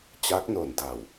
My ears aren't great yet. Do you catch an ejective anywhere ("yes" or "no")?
no